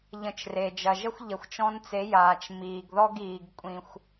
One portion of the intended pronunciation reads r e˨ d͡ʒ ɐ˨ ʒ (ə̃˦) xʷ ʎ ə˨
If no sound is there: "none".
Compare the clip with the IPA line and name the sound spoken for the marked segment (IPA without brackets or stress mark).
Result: ə˦